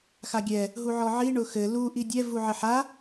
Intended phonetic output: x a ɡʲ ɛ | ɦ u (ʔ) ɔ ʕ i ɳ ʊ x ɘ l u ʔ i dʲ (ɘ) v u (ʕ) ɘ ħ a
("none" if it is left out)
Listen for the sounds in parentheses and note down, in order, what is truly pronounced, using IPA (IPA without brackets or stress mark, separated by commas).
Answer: ʕ, ɛ, ʕ